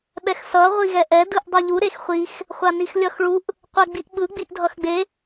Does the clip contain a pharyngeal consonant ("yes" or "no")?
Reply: no